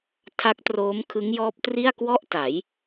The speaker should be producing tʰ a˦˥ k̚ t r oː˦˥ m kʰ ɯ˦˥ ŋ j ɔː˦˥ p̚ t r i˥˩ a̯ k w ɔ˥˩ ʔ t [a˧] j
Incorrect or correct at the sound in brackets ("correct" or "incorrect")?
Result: incorrect